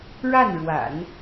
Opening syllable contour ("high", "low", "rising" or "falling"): falling